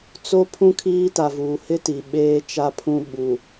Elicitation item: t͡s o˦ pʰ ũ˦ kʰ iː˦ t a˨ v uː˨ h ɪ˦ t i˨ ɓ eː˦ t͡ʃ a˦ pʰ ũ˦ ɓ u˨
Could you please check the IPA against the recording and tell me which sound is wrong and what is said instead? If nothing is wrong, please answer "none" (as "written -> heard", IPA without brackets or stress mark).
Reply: none